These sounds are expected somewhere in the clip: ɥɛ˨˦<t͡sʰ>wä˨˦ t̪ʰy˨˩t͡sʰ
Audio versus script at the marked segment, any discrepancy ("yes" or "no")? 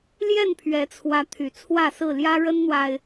no